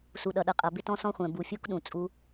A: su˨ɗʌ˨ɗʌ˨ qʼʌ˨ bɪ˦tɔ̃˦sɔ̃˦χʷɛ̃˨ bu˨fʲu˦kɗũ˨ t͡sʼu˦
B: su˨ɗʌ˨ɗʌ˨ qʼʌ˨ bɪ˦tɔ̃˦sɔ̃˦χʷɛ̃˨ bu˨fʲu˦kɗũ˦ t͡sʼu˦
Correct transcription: A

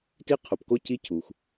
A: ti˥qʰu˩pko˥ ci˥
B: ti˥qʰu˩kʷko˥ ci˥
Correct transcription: A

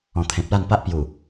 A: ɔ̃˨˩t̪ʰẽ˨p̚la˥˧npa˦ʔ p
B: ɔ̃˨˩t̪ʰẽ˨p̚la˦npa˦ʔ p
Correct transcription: A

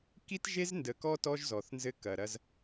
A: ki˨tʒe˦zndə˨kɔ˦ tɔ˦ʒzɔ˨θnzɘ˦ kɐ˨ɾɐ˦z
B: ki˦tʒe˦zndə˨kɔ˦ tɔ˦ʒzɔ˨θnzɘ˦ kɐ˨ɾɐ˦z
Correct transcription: B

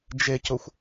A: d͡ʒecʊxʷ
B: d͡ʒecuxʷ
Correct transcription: A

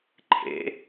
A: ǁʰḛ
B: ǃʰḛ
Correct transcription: B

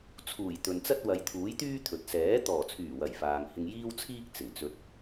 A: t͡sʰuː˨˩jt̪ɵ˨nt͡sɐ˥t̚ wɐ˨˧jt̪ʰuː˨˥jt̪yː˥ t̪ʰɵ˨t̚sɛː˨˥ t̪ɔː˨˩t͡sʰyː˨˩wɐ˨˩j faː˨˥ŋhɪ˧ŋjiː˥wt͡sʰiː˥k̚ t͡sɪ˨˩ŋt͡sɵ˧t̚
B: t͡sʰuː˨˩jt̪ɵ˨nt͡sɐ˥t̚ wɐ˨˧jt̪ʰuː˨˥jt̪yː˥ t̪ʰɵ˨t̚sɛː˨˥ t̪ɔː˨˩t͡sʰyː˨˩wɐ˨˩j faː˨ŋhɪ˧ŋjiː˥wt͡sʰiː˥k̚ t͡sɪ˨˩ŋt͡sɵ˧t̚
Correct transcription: B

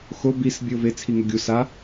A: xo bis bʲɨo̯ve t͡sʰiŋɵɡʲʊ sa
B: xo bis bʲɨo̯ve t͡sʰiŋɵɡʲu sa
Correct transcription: B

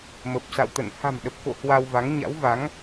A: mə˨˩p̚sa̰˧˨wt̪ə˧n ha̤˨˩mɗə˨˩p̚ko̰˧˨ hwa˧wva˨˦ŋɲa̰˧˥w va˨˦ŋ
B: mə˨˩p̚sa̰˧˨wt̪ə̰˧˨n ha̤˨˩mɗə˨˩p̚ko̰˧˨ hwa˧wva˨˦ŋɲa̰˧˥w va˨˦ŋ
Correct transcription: B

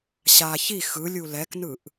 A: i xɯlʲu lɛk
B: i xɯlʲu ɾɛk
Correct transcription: A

